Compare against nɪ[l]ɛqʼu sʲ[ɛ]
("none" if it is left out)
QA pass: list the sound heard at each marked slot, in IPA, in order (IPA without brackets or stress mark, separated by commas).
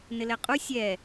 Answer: l, ɛ